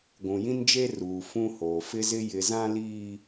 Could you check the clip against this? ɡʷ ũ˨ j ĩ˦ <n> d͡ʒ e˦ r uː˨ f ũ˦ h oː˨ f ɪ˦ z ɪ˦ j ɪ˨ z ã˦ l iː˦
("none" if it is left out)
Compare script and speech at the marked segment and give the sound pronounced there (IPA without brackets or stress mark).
n